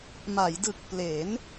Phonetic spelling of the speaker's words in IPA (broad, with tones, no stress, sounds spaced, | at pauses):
m a˩˦ j d ɯ˨˩ k̚ p l e˩˦ n